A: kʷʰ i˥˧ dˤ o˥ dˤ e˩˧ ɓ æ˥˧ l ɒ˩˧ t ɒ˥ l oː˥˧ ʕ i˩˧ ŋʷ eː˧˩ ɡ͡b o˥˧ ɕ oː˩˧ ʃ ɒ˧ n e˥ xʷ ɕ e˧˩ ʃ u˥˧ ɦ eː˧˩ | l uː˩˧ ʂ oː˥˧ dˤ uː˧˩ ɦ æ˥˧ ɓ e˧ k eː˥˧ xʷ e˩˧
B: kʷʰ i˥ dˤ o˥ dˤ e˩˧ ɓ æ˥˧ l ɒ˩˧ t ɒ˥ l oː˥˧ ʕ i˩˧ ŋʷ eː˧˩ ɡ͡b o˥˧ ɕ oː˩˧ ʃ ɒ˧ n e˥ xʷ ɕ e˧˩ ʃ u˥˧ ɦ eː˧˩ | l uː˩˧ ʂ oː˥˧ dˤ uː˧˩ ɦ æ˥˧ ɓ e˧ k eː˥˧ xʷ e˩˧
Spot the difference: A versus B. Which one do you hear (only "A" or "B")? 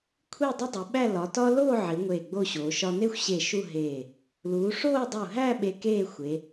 A